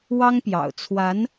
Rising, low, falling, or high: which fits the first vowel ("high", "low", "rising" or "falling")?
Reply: high